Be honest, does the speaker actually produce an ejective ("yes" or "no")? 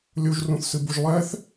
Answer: no